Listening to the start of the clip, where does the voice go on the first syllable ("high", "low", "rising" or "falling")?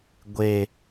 low